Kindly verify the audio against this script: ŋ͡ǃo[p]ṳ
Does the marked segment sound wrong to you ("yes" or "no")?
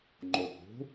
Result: no